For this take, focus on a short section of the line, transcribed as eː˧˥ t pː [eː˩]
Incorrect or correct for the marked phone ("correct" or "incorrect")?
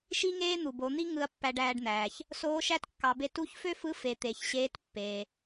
correct